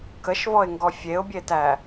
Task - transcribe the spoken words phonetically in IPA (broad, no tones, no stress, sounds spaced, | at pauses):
k ə ʃ v ɔ ɪ̯ ŋ ɡ ɔ fʲ e ʊ̯ bʲ e t æ